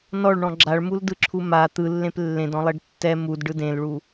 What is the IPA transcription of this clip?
n ɔ ɭ ɳ ɔ̃ ɡ͡ǁ a ɭ m u l d ɯ ǁʰ u m a t̪ ɯ lː ẽ p lː ẽ d ɔ̃ lˠ e ɖ tː ɛ m u d ɖ ɯ d ẽ l ɭ u

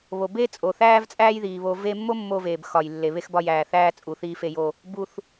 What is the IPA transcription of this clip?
β o˩ b eː˥ t͡sʼ o˩ θ æː˥ v t͡sʼ æː˥ j ð iː˩ β o˧ v e˧ mː o˥ mː o˧ v eː˩ b x ɒ˩ j lː e˩ β e˧ x b ɒ˧ j æː˩ θ æː˧ t͡sʼ u˩ θ iː˧ f e˧ j o˧ | b u˩ θ

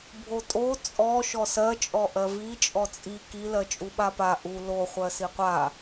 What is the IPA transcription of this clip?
bʱ o tʼ o t͡sʼ ɔ ʃ ɔ s ɜ t͡ʃʼ ɔ ʔ ɜ v i t͡ʃʼ ɔ t͡sʼ i k i l ɜ t͡ʃʼ u ɓ a p a ʔ u l o χʷ ɜ s i qʷ a

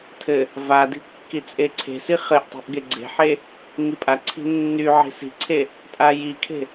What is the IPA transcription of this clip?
tʰ ɘ | v a d i̤ kː i t͡sʼ e ǀʰ e̤ s i χ ɘ ʔ tˤ i̤ ʔ ɡ e ɡ͡ǀ e̤ ħ e | ŋ i pʼ a ǀʰ i̤ nː y ʕ i̤ s i̤ ǀʰ e | tʼ a j i kʰ e̤

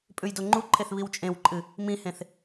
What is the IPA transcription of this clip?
pʼ ʉ j d o ŋ͡ǃ u ǃʰ e θ β i w t͡ʃʼ ẽ w ǃʼ ɨ | m ĩ h ẽ θ

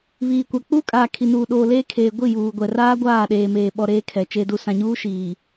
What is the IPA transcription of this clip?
β iː˨ kʷ a˨ k͡p uː˦ kʼ aː˨ kʰ i˨ n uː˨ ɗ oː˨ l eː˦ kʰ eː˨ ɡʷ i˦˨ j uː˨ ɡʷ ɛ˨ r aː˦ ɡʷ aː˦˨ ɗ eː˨ m eː˨ ɓ ɔ˨ ɾ eː˦ kʰ ɛ˨ t͡ʃ e˨ d u˨ s ã˨ ɲ uː˦ ʃ iː˨

